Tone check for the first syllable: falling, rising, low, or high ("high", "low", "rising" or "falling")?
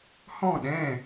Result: falling